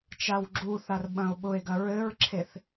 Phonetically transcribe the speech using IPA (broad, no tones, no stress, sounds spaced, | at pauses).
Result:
t͡ʃ a w ɡ͡ǁ u θ a r ɓ ɐ̃ o̯ ɓ ʊ e̯ ɡ ɐ ɹ ɘ ɹ ǁʰ e θ